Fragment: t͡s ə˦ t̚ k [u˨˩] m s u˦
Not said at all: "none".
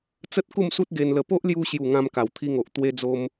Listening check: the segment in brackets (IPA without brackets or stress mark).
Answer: u˥˧